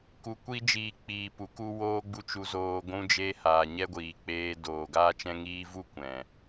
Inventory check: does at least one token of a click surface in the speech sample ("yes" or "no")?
no